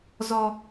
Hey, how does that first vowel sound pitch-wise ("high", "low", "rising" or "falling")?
high